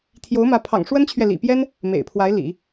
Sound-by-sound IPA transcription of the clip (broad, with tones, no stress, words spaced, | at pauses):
t̪ʰjo˧˥ʊ̯mä˧˥ pʰɑ̰˨˩ŋʂwə˥nt͡ɕʰɥɛ˨ lḭ˨˩pjɛ˥n | mḛ˨˩ɪ̯pʰwa˧˥ɪ̯ lḭ˨˩˦